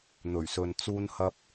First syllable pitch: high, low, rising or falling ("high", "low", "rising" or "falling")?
low